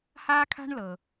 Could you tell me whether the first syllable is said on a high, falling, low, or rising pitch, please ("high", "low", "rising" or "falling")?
high